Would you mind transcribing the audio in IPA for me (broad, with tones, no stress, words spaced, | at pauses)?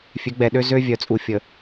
fʲø˨˦ɡ͡bɛ˨ɗø˦ zø˦vʲœ˨t͡sʼu˨ fʲə˨